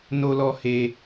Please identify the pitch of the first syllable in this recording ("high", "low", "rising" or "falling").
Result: low